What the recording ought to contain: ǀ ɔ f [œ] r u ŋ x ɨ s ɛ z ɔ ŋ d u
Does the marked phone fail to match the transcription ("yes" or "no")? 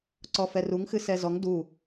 yes